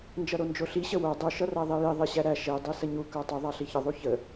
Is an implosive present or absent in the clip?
absent